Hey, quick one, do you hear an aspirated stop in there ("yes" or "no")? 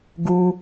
no